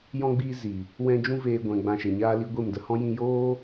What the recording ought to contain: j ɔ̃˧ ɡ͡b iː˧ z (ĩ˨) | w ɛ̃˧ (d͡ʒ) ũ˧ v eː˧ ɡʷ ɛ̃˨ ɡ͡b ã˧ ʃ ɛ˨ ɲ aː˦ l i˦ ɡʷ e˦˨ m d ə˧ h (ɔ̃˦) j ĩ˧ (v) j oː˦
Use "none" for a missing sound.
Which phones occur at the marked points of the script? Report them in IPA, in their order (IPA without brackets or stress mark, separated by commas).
i˨, d͡ʒ, ɔ̃˦, none